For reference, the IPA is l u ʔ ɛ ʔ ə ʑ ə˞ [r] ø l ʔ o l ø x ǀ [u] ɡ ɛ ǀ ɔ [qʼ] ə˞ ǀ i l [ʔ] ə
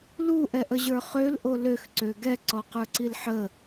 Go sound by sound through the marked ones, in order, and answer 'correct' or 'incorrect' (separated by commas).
incorrect, incorrect, incorrect, incorrect